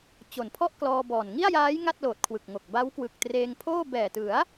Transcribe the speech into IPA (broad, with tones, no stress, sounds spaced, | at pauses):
t͡ɕ o˩˦ n pʰ ɔ˥˩ ʔ k l ɔː˧ b ɔː˨˩ n ŋ i˥˩ a̯ j aː˦˥ j ŋ a˥˩ t̚ l oː˨˩ t̚ kʰ w ɯ˨˩ k̚ ŋ o˨˩ k̚ b a˦˥ w k w ɯ˨˩ k̚ t r eː˧ ŋ pʰ oː˥˩ b ɛː˨˩ t ɯ˩˦ a̯